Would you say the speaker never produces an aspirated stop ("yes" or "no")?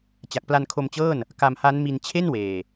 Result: no